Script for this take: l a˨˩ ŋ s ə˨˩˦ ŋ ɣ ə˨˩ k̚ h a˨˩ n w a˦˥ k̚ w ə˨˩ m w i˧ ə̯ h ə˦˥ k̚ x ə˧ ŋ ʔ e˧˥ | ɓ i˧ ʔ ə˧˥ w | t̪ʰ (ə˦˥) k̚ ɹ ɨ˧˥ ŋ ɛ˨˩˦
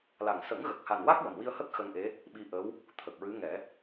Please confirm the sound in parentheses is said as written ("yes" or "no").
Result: no